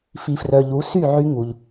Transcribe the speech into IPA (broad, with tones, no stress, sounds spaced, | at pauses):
f i˨ f r œ˨ ʎ u˨˦ s y˦˨ ʕ y˧ ŋ u˨ ʎ